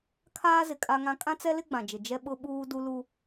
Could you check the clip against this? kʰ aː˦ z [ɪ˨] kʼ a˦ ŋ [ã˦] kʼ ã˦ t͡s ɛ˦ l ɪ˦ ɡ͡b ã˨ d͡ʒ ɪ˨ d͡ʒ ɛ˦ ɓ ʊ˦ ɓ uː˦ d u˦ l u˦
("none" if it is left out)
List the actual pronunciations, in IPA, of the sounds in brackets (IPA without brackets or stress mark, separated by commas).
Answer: ɪ˨, ã˦